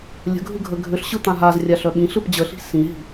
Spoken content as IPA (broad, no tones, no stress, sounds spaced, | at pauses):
lʲ ə̤ ɡʱ ɯ ɡʱ ə ɡʱ ʏ ɬ ɕ ɯ t̪ ã ɦ a z rʲ a ɬ œ ɓ ĩ ɬ ɯ p d͡ʑ ə ɬ i̤ s ĩ ɦ i̤